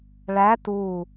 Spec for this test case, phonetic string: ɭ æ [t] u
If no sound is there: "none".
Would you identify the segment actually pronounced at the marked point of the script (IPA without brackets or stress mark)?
t